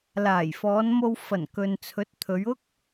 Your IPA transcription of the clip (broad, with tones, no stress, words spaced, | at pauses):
laː˨˩jfɔː˨˧nmo˧w fɐ˨˩n kɵ˨nt͡sʰɵ˨˥t̚ t̪ʰɵ˨˧ɥʊ˥k̚